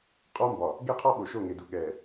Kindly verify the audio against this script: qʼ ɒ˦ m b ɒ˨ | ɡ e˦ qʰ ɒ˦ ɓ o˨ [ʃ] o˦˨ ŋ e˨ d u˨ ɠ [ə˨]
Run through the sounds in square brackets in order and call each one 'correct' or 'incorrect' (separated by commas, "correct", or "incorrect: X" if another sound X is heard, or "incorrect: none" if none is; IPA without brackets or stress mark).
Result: correct, incorrect: ɛ˨